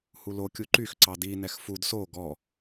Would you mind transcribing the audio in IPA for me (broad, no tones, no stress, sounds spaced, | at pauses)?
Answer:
h u l o kʲ u ǃ y x ǀ ɑ d i n ɛ x f u d s o ɡ ɔ